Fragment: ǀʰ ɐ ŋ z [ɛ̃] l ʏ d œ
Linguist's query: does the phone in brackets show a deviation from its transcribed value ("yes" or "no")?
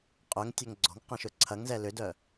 yes